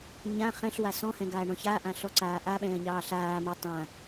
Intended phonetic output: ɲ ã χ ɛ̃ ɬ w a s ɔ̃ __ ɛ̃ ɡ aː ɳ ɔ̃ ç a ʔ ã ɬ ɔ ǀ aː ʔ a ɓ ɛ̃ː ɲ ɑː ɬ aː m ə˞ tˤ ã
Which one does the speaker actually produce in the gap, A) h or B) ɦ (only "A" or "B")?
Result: A